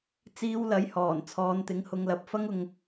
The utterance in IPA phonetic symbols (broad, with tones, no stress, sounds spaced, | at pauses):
t͡s iː˧ w l ɐ˨˥ j h ɔː˨˩ n t͡sʰ ɔː˨˧ n t̪ ɪ˨˥ ŋ h ʊ˨˧ ŋ l ɐ˨ p̚ f ɐ˥ ŋ ʊ˧ ŋ